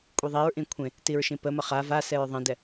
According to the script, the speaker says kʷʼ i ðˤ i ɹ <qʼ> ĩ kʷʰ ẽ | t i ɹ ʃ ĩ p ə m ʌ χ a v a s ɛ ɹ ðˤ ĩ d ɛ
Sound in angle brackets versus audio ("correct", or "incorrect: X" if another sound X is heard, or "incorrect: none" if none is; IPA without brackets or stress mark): incorrect: ʔ